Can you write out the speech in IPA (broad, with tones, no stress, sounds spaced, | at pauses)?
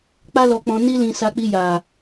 k͡p a˦ l ɔ˧ k͡p ɔ̃˧ n i˦ l ĩ˧ s a˧ k͡p i˧ j a˨